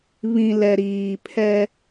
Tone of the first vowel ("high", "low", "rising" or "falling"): low